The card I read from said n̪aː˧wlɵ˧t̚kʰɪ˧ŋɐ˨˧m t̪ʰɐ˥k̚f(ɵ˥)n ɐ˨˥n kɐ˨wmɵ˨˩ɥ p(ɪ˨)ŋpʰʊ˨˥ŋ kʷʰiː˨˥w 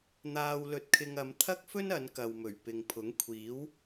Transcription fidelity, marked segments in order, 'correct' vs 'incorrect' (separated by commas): correct, correct